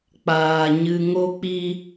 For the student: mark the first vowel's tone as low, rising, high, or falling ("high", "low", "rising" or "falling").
low